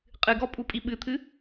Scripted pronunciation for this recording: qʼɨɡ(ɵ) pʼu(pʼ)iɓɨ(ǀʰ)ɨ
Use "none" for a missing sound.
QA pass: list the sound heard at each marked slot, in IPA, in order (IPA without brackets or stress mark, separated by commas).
ɔ, pʼ, t̪ʰ